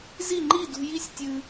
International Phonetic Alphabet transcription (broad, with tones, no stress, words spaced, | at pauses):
zi˥˨ŋ͡ǃi˥˨dṳ˧ji˥˨sʲ tʲɨ˧